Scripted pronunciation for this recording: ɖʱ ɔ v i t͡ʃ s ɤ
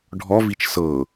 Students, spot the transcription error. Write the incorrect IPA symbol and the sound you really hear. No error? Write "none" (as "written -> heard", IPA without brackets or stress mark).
none